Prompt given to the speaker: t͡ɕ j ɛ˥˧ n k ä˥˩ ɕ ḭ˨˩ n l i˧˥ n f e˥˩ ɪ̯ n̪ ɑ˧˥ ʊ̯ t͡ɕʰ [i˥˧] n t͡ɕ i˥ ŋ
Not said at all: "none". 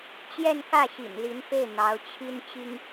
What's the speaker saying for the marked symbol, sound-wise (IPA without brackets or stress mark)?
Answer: i˥